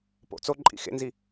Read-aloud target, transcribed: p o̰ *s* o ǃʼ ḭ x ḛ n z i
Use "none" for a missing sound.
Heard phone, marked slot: t͡s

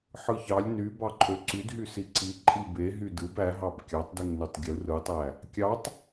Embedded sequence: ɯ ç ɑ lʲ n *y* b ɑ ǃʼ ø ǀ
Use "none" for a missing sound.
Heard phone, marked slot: y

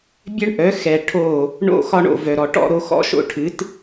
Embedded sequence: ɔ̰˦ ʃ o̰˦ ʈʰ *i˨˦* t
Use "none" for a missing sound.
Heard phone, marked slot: ɨ˨˦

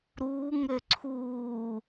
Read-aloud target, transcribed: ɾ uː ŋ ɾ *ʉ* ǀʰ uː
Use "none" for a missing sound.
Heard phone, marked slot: ø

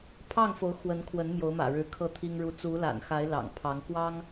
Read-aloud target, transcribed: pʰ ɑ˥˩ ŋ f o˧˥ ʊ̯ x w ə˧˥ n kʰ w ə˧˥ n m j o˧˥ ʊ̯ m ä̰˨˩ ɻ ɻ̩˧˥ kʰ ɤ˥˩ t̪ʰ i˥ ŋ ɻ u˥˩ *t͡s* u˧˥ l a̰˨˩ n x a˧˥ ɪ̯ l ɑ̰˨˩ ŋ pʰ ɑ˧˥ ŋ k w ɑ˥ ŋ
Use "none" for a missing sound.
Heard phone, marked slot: t͡s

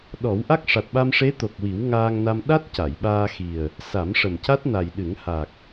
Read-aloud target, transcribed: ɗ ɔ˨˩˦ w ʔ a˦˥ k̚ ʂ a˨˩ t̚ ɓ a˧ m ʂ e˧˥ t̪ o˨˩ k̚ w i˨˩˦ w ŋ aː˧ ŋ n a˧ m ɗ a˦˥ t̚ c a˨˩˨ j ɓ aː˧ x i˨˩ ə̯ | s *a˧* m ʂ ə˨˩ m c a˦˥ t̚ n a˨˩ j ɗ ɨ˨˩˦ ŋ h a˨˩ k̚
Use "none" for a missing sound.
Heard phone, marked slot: a˨˩˦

